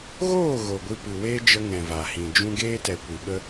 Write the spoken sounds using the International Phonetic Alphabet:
ɣoː˦˨ ɣo˨ɡʷɨ˧pɨ˨ weː˦d͡ʒə˧ ŋɛ̃˨ va˨ hĩ˨d͡ʒũ˦ ɡeː˦tɛ˨ kʷi˨ɓə˦

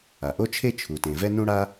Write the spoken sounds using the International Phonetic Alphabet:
a˩ʔo˥t͡ʃʰe˥ t͡ʃʰu˩tẽ˩ vɛ˥nũ˥ɽa˥

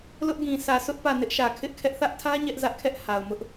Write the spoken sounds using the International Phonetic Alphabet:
lʊ˦ʔɡĩ˨ sʰä˨sʰʊ˦ʔ pä˦˨nɪ˦ʔʃä˨ kʰɪ˦ʔkʰɛ˦ʔ θä˦ʔtʰä˦ ɲɛ˦ʔzä˦ʔkʰɛ˦ʔ ha˨ʊ̯mʊ˦ʔ

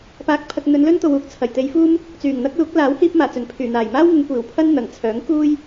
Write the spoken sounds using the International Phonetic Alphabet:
paː˧k̚pʰɐ˧k̚ n̪ɵ˨˧nlɵ˥nt̪o˨wuː˨k̚ t͡sʰɐ˨˩jt̪e˨˧jfuː˥m | t͡syː˨˩ŋn̪ɐ˥k̚luː˨˥k̚laː˨˥w hiː˧p̚maː˨˩t͡sɵ˨˩n pʰyː˨˩n̪aː˨˩jmaː˥wŋʊ˨˧ŋ kʷiː˨˩wpʰɐ˥n n̪ɐ˨˩ŋ t͡sʰœː˨˥ŋkuː˥j

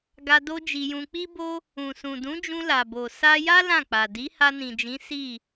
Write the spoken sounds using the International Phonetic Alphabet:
ɡa˧ do˦d͡ʒi˧jũ˧ k͡pi˦bo˦ | ũ˨sũ˨dũ˨˦d͡ʒũ˧ la˨bo˨ sa˧ja˦ lã˦˨k͡pa˨ di˨˦ha˧nĩ˨d͡ʒĩ˨˦ si˦˨

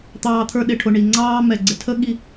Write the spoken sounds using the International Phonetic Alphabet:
t̪ɑː˧t̪ʰə˞˧ ɗɪ˨ʈʰʊ˨ɳi˨ ŋ͡ǀɑː˧ mɛ˨ɡ͡ǀɪ˨tʰə˦ ɠi˧

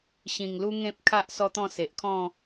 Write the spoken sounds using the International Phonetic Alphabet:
ɕĩ˨˩ŋlu˦ŋẽ˦p̚ kʰa˦ʔ sɔ˦t̪ɔ̃˥˧se˨ʔkʰɔ̃˥˧

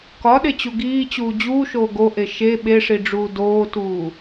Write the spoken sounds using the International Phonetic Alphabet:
kɒɗet͡ɕu ɡiːt͡ɕuː d͡ʑuːʃoː ɡoʔe ʃe ɓeʂiɖ͡ʐuː doːtuː

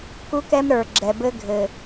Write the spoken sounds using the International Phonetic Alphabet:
ku˦kɛ˦m ɾə˞˨ɡ͡ǁɛ˨bɘ˦ ɡʱɘ˨

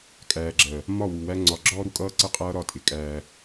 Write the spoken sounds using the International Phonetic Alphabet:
kʼæː˨ɡ͡ǁɜ˨ | mɒ˦˨wu˨wæ˦ ŋ͡ǀɒ˨ɡ͡ǁɔː˦ɾu˦kʼʌː˦ ǀə˦qʼʌː˦ɾɒ˦˨tʼɪ˨ kʼæː˦

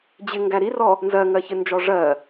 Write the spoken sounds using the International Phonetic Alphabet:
d͡ʑɪ ŋɡæɾirɔ | nzɜŋɜçɪnd͡ʒɔ ʐɜ

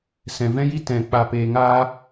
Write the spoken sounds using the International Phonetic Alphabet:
sɛ̃˨vɛ̃˦ji˦ tɛ̃˨ k͡pa˨peː˨ŋaː˧

